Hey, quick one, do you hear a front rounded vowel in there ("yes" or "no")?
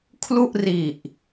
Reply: no